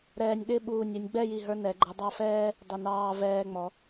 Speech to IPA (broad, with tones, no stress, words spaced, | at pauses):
ɾɛː˧nʲɗɪ˥˧ ɓuː˧˩nʲɛ˧nʲ ɡ͡bɛ˥˧ji˧˩ɦə˞˧nɛ˩˧ ɡ͡ǃə˩˧ dˤɑ˧fɛː˥ | dˤɪ˧˩nɑː˧vɛː˧ŋ͡mɔ˩˧